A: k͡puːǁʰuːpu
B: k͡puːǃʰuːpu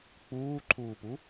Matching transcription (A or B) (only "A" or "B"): B